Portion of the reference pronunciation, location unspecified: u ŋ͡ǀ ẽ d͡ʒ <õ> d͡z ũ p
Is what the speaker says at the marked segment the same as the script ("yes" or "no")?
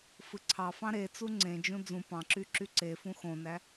no